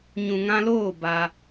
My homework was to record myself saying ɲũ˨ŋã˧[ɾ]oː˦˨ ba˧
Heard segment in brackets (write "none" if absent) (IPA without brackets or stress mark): l